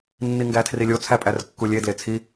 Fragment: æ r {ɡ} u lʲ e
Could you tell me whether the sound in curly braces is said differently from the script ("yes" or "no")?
yes